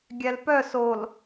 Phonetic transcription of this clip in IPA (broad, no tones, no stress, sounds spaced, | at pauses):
ɡʲ æ l p œ s o l